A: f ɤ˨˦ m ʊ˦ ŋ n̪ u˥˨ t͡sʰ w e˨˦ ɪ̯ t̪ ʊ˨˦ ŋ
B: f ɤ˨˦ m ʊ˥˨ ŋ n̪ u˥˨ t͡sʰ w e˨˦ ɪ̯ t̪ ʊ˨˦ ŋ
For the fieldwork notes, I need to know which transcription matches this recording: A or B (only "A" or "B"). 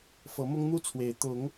A